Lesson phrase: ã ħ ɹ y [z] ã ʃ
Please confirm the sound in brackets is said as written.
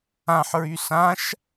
no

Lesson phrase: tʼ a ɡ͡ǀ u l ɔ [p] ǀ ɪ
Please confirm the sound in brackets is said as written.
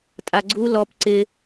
yes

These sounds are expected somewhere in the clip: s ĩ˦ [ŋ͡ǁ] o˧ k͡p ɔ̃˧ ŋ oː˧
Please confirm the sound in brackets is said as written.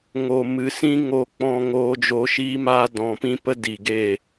no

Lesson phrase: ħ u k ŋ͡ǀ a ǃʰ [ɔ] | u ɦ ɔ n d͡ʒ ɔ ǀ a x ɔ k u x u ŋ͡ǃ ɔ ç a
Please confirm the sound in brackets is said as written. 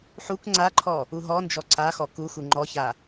yes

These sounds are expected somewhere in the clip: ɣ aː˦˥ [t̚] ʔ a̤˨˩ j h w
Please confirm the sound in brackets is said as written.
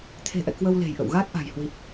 yes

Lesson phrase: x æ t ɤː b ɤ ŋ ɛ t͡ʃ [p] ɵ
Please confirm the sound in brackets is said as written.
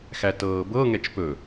yes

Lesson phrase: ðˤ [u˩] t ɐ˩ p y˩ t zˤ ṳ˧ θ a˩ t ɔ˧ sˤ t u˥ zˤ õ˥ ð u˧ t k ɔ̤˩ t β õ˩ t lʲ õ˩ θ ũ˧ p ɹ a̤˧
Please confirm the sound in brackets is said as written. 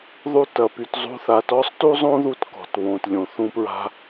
no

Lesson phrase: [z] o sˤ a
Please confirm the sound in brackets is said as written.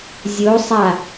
no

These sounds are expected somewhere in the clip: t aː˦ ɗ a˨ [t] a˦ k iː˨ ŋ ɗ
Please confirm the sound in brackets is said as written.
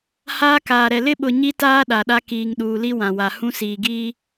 no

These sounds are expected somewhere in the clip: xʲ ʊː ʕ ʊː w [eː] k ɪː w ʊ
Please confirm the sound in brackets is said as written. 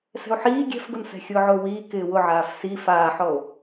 no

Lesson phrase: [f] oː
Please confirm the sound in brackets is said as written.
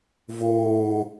no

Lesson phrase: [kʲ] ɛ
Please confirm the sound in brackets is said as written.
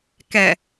no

